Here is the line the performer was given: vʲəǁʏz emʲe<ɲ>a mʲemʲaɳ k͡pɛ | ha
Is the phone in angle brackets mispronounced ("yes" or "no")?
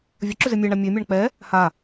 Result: yes